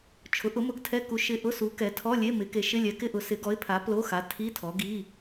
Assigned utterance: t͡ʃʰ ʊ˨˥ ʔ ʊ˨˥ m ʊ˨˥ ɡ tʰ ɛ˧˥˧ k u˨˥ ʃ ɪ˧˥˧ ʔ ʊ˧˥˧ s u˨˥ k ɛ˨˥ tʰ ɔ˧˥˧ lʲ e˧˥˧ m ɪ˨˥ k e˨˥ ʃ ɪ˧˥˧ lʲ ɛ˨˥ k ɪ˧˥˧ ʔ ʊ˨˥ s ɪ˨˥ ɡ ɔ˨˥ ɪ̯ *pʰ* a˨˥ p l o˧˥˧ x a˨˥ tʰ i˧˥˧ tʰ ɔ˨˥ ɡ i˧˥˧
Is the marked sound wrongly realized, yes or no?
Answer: no